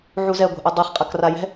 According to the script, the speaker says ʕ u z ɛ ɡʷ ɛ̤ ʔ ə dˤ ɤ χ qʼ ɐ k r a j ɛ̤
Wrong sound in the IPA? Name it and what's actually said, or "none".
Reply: none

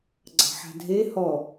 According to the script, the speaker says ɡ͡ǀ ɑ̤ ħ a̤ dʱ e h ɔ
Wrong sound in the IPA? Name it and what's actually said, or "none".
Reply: none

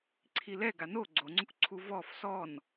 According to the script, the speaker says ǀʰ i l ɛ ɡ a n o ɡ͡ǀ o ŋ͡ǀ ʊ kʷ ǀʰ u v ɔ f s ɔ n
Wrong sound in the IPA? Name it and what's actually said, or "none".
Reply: none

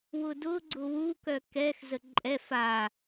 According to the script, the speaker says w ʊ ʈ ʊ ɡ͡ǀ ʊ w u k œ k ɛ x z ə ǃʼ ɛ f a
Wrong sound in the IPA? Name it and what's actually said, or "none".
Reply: ʈ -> d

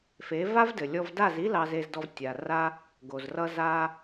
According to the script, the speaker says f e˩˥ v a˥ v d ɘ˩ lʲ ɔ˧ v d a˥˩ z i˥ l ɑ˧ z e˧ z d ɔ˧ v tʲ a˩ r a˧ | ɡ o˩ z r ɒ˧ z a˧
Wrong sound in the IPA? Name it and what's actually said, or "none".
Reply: ɒ˧ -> ʌ˧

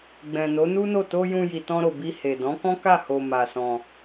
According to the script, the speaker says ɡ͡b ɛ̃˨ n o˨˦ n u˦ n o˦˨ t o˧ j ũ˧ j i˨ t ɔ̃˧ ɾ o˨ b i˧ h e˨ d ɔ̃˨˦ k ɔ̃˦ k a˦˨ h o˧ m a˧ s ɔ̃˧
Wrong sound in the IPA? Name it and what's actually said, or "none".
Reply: none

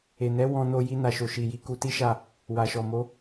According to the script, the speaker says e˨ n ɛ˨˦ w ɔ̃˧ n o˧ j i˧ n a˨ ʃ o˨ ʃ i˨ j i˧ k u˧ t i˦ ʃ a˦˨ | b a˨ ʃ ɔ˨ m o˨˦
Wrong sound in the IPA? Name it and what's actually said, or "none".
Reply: b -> w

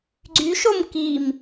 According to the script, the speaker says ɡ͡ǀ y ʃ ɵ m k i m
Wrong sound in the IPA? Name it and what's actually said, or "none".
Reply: ɵ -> o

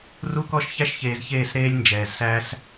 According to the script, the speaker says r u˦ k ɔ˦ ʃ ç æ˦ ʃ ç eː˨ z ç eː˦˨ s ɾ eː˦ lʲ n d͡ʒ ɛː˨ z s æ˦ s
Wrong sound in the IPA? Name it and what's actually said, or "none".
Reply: none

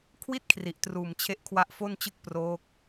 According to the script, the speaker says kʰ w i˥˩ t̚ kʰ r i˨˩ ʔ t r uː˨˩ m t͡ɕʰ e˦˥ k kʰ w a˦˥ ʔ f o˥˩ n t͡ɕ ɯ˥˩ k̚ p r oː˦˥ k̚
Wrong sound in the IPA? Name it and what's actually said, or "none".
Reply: k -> ʔ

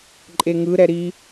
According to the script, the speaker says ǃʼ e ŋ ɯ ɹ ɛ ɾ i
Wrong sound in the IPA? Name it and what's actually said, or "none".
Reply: ɹ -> ɾ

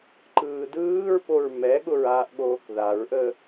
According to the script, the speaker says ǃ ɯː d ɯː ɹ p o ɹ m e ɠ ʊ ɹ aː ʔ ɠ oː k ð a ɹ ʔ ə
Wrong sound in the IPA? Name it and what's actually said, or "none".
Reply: e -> ɛ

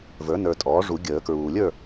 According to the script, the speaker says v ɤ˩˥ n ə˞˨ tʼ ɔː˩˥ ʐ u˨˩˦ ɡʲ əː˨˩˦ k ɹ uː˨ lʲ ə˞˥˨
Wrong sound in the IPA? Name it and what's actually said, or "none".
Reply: ɤ˩˥ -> ə˞˩˥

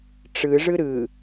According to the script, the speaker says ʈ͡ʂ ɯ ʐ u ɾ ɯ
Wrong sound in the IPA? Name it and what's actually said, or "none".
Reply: u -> ɯ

